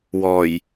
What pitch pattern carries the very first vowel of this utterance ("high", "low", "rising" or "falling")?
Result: low